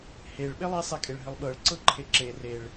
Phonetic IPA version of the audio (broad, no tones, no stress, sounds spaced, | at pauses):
h e ɭ ɓ e lˠ i sˤ e kʼ e ɭ ɦ ɘ lˠ ɓ ɤ ɭ ǀ ɤ ǃʰ e ǁ e r e ɭ